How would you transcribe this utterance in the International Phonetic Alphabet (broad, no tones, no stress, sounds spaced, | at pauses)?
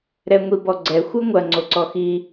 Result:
ɾ ɛ ŋʷ i b ɔ ɡ͡ǀ ɛ xʷ ɘ ŋʷ ɐ ŋ͡ǀ o ǀ ɔ x i